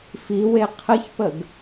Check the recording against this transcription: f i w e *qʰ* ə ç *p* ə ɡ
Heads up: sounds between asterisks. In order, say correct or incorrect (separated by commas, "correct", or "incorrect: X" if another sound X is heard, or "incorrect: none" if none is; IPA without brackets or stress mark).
correct, correct